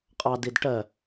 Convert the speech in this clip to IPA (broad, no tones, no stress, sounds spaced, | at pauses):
qʼ ɑ d i d ʈ ɜ